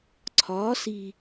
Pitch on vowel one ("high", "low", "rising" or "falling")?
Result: rising